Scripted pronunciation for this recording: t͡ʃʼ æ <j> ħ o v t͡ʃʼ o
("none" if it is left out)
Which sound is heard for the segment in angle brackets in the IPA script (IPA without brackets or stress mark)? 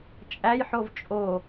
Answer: j